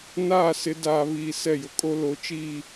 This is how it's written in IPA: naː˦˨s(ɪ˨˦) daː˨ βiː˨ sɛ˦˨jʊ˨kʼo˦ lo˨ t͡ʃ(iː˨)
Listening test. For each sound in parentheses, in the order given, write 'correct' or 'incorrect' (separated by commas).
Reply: correct, incorrect